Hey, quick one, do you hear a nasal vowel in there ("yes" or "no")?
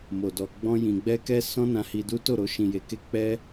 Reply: yes